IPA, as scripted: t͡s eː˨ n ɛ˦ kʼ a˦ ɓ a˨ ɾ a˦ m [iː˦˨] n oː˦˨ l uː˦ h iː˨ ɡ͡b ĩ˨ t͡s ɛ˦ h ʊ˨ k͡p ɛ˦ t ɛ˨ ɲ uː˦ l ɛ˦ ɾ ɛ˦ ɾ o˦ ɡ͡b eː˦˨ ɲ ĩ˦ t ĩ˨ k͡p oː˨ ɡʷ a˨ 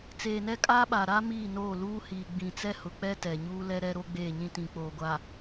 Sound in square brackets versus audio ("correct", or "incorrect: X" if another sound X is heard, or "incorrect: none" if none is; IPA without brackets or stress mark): correct